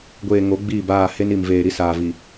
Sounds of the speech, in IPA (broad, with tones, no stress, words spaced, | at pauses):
ɡʷeː˨ ŋo˨˦ ɡ͡biː˦˨baː˦˨ he˦ni˨m veː˨ɾi˦saː˨vi˨